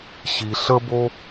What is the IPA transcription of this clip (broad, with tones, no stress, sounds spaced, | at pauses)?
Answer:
ɕ i˧ ɬ ə˥ b o˥